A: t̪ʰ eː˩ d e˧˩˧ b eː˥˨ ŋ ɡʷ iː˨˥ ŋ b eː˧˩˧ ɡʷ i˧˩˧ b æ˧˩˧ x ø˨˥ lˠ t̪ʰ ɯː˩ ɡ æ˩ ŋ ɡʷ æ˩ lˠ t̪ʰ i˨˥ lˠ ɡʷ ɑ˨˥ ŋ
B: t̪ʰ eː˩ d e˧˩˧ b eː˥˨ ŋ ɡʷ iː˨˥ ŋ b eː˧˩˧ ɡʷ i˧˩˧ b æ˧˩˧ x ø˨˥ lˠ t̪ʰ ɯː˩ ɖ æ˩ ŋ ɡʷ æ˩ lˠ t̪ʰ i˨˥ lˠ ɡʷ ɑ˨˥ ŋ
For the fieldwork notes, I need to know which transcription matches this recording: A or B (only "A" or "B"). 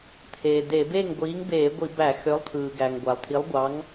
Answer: A